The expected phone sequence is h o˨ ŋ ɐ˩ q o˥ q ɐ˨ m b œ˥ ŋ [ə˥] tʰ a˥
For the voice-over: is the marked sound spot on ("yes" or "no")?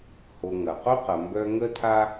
yes